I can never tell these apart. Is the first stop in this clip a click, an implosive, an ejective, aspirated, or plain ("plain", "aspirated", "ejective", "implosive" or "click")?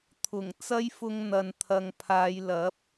aspirated